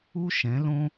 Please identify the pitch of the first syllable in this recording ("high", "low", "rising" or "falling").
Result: high